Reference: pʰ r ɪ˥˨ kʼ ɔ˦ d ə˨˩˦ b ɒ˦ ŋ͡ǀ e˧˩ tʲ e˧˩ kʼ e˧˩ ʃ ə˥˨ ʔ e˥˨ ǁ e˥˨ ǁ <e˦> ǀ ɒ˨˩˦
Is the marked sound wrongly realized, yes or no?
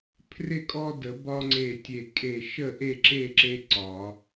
no